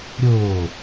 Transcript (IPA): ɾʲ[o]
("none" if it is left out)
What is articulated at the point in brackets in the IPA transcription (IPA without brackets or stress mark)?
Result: oː